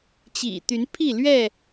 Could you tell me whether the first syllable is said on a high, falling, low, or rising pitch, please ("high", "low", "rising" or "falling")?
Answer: low